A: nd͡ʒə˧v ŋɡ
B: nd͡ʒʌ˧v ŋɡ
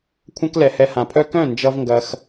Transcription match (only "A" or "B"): B